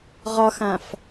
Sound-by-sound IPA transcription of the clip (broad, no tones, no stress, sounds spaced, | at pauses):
ʁ ɒ x ã f